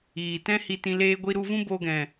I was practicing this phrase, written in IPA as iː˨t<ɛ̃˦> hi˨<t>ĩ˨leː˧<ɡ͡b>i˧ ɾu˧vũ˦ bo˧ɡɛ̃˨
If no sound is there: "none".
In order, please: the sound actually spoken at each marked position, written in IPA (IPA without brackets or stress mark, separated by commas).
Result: ɛ̃˦, t, ɡʷ